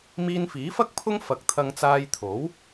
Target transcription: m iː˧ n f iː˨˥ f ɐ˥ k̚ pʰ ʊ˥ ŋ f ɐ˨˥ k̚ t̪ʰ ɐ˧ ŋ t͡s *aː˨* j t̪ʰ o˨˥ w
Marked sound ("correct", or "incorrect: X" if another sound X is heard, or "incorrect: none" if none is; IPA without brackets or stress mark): incorrect: aː˧